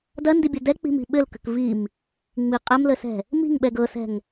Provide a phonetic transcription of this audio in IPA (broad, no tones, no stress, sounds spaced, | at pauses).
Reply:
d ɐ n d i bʲ ʌ d ɛ k͡p i̤ m i̤ ɓ ɘ l k ə̤ k v i m | ŋ͡m i qʼ ɛ m l ə s ɛ̤ | m i̤ ŋ ɓ ɛ ɡ ɤ s ɛ̤ ŋ